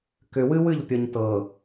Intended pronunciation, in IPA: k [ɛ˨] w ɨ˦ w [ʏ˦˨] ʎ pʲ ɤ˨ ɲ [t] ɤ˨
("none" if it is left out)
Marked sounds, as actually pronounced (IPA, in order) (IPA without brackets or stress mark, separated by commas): ʏ˨, ɨ˦˨, t